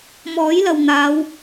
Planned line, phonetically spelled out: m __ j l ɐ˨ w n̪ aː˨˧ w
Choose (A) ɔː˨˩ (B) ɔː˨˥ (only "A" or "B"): B